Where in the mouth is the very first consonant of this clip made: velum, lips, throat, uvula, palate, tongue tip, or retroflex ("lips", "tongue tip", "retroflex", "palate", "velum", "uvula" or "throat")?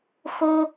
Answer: velum